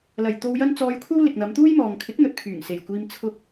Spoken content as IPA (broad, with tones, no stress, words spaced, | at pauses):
lɐ˨˩jt̪o˧wjɐ˥n t͡sɔː˧jkʷʰɐ˥w lɪ˨k̚n̪ɐ˨˧mt̪uː˥jmɔː˨ŋ kʰɪ˨˥k̚n̪ɵ˨t̚ pʰyː˨˩ŋ se˨˩jkʷiː˧m t͡sʰʊ˧k̚